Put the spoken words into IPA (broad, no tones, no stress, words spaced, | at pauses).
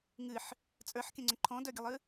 ŋɨħ | t͡sʼə˞ħkʲə̃ŋ͡ǀə̃ ǃʰɔ̃dœɡʲəlˠɨ